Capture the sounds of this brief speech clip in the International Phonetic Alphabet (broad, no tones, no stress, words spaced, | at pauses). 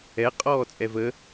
ɛ qʼɔːt͡sʼɛvə